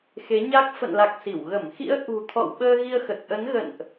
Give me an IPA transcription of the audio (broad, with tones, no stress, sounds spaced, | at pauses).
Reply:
x e˨˦ ɲ a˦˥ k̚ f ə̰˧˨ n l a˨˩ k̚ s i˧˩ w ɣ ə˧˩ m x ḭ˧˥ ə̯ ʔ ṳ˨˩ t̪ʰ ɔ̰˧˨ w ɓ əː˧ ɣ i˧ ə̯ x ə˨˩ t̚ ʔ ə˨˦ n ɣ ə̰˧˨ n ʔ